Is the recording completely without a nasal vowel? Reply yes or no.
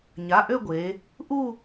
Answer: yes